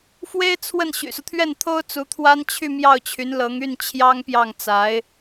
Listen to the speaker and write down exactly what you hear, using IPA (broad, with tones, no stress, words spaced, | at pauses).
fwe˥ɪ̯t͡sʰwə˥˩n ɕy̰˨˩su˦t̪ʰɥɛ˥˩n t̪ʰo˥ʊ̯t͡su˧˥ t̪ʰwa˥nt͡ɕʰy˥˧ mjɑ˥˩ʊ̯t͡ɕʰy˧˥nlɤ˧˥ŋ y˥˩n t͡ɕʰjɑ˥ŋpjɑ˥˩ŋt͡sa˧˥ɪ̯